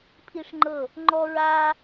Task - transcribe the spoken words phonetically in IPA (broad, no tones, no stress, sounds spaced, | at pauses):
pʰ i ʂ ŋ͡ǃ ɤ | ŋ͡ǃ ɔ ɹ a